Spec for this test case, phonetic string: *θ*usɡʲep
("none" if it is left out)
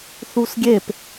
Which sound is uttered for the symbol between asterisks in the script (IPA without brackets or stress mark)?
θ